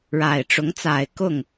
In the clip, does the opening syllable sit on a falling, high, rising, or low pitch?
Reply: low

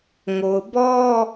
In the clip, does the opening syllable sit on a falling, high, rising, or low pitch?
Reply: low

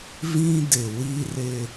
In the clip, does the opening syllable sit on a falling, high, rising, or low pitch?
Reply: high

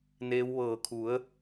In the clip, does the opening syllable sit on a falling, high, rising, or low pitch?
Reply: rising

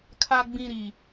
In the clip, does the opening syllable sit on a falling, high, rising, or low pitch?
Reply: low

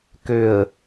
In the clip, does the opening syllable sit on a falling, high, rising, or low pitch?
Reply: low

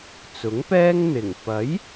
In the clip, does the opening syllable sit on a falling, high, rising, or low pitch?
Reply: rising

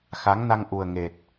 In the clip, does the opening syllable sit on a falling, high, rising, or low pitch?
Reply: rising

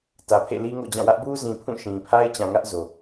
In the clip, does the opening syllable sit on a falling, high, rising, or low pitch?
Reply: low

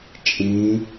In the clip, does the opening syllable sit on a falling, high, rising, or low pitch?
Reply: rising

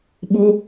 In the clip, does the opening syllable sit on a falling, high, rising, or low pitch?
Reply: high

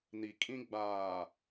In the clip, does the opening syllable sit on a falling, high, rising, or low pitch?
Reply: low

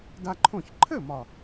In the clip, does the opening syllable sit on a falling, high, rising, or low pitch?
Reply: high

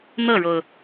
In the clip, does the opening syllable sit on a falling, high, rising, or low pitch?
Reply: falling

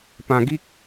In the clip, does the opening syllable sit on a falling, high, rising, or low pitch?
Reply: low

